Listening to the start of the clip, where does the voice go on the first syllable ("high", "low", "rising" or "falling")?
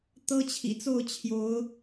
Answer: high